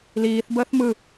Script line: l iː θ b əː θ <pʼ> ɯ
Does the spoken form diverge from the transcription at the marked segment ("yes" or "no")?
yes